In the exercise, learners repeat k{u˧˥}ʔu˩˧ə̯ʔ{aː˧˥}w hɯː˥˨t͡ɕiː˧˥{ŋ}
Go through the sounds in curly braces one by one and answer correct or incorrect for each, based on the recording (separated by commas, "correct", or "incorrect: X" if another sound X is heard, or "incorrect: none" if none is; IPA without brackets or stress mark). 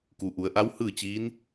incorrect: u˩, incorrect: a˧˥, incorrect: n